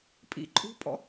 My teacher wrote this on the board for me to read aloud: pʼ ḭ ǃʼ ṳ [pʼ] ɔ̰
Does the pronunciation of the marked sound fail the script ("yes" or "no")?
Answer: no